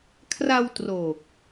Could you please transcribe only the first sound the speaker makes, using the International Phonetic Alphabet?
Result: kʰ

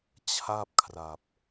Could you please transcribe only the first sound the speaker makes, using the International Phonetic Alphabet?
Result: t͡ɕʰ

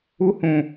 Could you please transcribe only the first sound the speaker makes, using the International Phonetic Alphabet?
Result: u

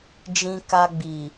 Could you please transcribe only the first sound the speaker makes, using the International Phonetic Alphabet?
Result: d͡ʒ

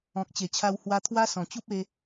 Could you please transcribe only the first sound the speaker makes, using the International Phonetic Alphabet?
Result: ɔ̃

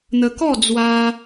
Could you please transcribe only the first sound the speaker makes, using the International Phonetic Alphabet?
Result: n̪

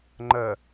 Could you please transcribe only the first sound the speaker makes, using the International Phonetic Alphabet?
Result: ŋ͡ǃ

